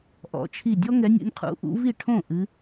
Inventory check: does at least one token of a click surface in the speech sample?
no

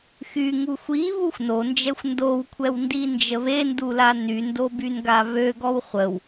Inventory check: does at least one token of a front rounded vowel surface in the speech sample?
yes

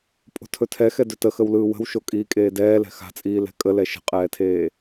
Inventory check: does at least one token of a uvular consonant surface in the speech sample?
yes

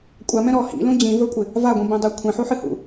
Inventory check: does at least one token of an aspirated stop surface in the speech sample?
yes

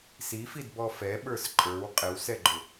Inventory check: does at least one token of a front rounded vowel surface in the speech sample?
no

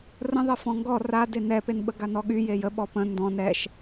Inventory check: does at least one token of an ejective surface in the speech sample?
no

